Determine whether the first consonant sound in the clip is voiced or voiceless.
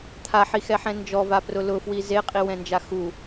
voiceless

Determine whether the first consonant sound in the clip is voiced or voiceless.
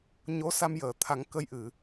voiced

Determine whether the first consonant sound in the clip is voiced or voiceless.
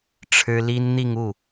voiceless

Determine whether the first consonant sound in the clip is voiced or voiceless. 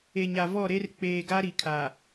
voiced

